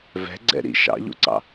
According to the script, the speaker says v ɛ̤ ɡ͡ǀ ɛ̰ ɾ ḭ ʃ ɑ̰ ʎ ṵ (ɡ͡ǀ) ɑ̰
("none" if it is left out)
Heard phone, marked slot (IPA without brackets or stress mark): ǀ